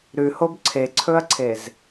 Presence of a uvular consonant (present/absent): absent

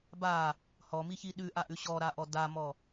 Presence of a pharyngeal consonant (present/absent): absent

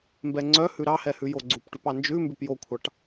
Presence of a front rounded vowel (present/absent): present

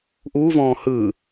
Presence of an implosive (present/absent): absent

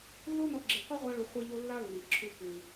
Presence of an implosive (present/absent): absent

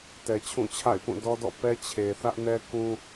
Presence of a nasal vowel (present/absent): present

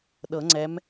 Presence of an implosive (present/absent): present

